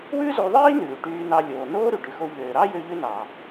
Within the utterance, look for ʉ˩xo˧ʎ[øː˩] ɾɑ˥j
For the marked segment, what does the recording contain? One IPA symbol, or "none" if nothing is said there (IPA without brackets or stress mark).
øː˩